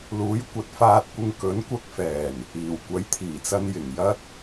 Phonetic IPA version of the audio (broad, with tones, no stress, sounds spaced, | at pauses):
l uː˨˥ j kʷ ɐ˨ t̚ f aː˧ t̚ kʷ ɪ˧ ŋ k ɵ˨˥ n kʷ ɐ˧ k̚ f ɛː˨˩ n | iː˨˩ w kʷ ɐ˨˥ j t̪ʰ iː˨˩ t͡s ɐ˧ n j ɪ˨˩ ŋ j ɐ˥ t̚